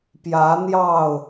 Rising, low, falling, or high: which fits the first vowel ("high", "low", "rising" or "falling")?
rising